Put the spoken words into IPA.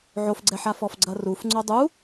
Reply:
ʕ o f ɡ͡ǀ ɛ ħ a f ɔ f ɡ͡ǀ ɐ r u f ŋ͡ǀ o dˤ u

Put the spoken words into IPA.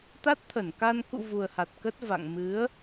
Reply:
t̪ a˦˥ t̚ t̪ʰ ə˧˩ n k a˧ n k ṵ˧˨ v u˨˩ ə̯ h a˨˩ t̚ k ə˦˥ t̚ v a̰˧˨ ŋ m ɨ˨˦ ə̯

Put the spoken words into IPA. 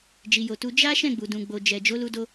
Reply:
d͡ʒ i˨ j o˨ t u˧ d͡ʒ a˦ ʃ ɛ̃˦˨ ɡ͡b u˨ d ũ˨ ɡ͡b o˨ d͡ʒ ɛ˨ d͡ʒ o˨˦ l u˧ d o˧

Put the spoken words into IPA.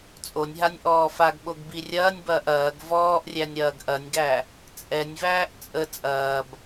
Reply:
t͡sʼ o nʲ ɦ a nʲ ʔ ɔː f a ɡ ɓ o ɡ b i rʲ ɐː nʲ b ɐː ʔ ɐː ɡ v ɔː ʔ rʲ æ nʲ ɾ ɐː ɡ ʔ ɐ nʲ ɡ æ | t͡sʼ ɛ nʲ v æː ʔ t͡sʼ ə t͡sʼ ɐː b

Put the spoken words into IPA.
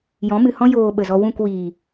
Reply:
j ɔ̃˨˦ m ɨ˨ h ɔ̃˦ j oː˧ ɓ ə˨ z ɔ˧ w ũ˦˨ k w iː˨

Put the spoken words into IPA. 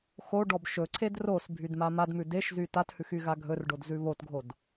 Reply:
x o ɖ ɔ b ʃ ɵ ǀʰ e d r o s bʱ y d m a m a d m ʉ d e ʃ z y t a t h ʉ x y ɣ a ɡʱ ɵ r ɖ o d z ʉ β o t ɡʱ o d

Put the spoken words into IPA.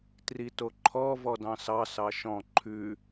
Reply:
t r i t o ǃʰ ɔ v ɔ d ɑ̃ s ɑ s ɑ ʃ ɔ̃ ǃʰ ʉ

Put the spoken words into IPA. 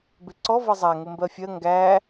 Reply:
b ɪ ǀ ɔ v ʌ zˤ æ ŋ ʊ m b ɜ fʲ ɜ ŋ ɡ æ

